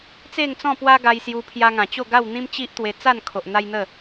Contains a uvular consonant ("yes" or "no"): no